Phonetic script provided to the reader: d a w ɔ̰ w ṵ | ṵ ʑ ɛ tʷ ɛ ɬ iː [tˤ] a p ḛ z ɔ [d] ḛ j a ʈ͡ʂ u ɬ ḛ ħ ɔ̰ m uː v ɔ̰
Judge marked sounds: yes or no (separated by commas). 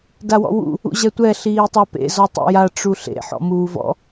yes, no